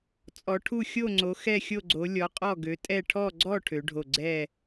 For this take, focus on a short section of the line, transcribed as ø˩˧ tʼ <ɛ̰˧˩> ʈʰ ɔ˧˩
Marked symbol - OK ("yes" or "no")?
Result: no